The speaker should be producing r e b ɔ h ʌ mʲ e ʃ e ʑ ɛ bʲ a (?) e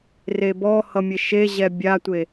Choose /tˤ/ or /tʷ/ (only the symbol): tʷ